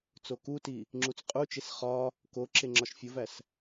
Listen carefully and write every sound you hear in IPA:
t͡s o k u t i | ŋ͡ǁ u t͡s qʼ u t͡ʃ e s χ ɒ | k o ǁ e ŋ͡ǁ ɒ ʃ fʲ o v æ s

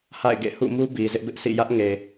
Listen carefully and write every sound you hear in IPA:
h a̰˦˨ ɪ̯ ɡ ḛ˦˨ h ṵ˦˨ m u˦ b i˨ z ɪ˦ ʔ b ɪ˦ ʔ sʰ ḭ˦˨ j ä˦ ʔ ŋ e˨

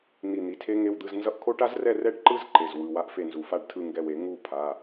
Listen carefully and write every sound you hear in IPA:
n̪ i˧˩ n̪ i˩˧˩ tʰ e˦˥ ŋ e˧˥˧ w d̪ ɯ˧˥˧ z n z ʌ˧˥˧ ʔ kʰ o˦˥ ʈ a˦˥ z r ɛ˥˨ r ɛ˥˨ ɖ ǃ ɯ˦˥ z ǃ e˩˧˩ z w ɯ˩˧˩ w a˦˥ ʔ f e˥˨ n z u˨˩˦ f a˥˨ ɖ tʰ ɯ˥˨ ŋ ɡ ɛ˧˩ w e˨˩˦ ŋ u˥˨ pʰ a˩˧˩

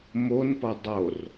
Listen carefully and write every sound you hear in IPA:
m o n p ʌ dˤ o r

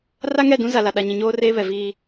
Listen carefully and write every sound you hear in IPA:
r a˦ ŋ ɛ˦˨ d ũ˦ z a˨ l a˨ ɗ a˨ ɲ ĩ˨ ɲ oː˦ r eː˦ β ɛ˨ v iː˦

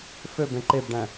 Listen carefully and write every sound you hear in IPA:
f ø b ẽ ǃ e b ɖ æ̃

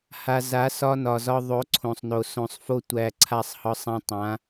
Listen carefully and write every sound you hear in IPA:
h a˨ z a˨˦ s ɒ˦ n ɒ˨ z ɒ˦ ðˤ o˨˦ ǀʰ õ˨ sˤ n o˨ s õ˨ sˤ f o˦ tʷ æ˨ ǀʰ a˦˨ sˤ h ɒ˦ sˤ æ̃˦ tˤ ã˨˦

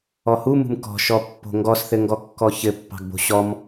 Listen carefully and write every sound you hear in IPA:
ɔ h u m ṳ m k ɔ̤ ʃ ɔ pː o̤ ŋ ɡ ɔ s θ ɘ ŋ ɡ ɔ kː ɔ ç ɘ pː ɑ̤ ɡ b o̤ ɕ ɔ m

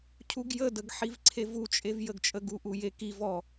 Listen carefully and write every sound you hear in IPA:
cʰ u ɡ j ə d ə ɡ ħ i v ǀʰ e v u t͡ʃʼ e v j ə ɡ t͡ʃʼ ə ɡ u ʔ u j e k i v ɔ

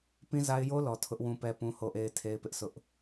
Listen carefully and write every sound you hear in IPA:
p ĩ˦ z a˦ ɪ̯ j o˦ l ɔ˨ tʰ ʊ˦ ʔ w ũ˦ p ɛ˦ p ũ˦ h o˦ ʔ e˦ ɪ̯ tʰ e˦ ɪ̯ p ɪ˦ ʔ s ʊ˦ ʔ

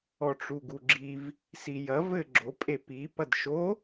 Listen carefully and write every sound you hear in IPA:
ɔ ʈ͡ʂ u ɡ u ɡ͡ǁ i v | s i j ɐ v ɘ ɡ͡ǁ o pʼ e p i p ɐ d ʃ o

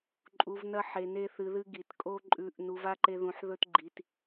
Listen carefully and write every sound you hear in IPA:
ǃʼ u˧ v n ɐ˦ ħ e˧ n e˦ θ ɨ˧ ð ɨ˦ ɡ i˨ t kʼ o˦ ǃʼ ʉ˧ ʔ n u˧ v a˦ ǃ e˦ ð ũ˧ ħ ð ɵ˦ t ɡ͡ǃ i˧ t

